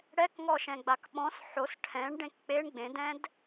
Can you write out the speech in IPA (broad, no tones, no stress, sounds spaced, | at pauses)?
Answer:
ɽ ɛ k ŋ ɔ ʃ ɛ̃ ɡ͡b a k ɓ ɔ̃ s ħ o s ʈʰ ɛ̃ ɳ ɖ ẽ k k͡p e ɳ ɡ͡b ẽ d ɛ̃ d